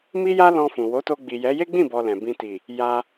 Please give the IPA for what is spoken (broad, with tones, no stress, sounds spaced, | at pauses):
m i˦ j a˦ l ɔ̃˧ f ũ˨ w o˨˦ t o˧ ɡ͡b i˨ j ɛ˨˦ j e˦ ɡ͡b ĩ˦˨ b ɔ˨ l ɛ̃˨ b ĩ˧ t i˨ | j a˧